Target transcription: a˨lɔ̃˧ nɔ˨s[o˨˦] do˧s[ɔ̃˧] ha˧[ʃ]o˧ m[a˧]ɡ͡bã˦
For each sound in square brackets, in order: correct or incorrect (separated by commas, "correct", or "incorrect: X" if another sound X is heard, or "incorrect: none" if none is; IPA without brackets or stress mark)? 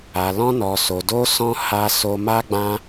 incorrect: o˨, correct, incorrect: s, incorrect: a˦